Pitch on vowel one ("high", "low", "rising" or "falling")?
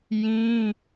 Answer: high